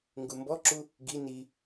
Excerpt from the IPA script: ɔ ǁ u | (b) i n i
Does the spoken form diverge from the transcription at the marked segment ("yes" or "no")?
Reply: yes